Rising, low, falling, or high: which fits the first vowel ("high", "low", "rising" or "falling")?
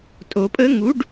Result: rising